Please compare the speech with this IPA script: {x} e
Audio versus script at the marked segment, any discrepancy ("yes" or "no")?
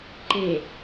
yes